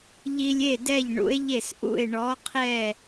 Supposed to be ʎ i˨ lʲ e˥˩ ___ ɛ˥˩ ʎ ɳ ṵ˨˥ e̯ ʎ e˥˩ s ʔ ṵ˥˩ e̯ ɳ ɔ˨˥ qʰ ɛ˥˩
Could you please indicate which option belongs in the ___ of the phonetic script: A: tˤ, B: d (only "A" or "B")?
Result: B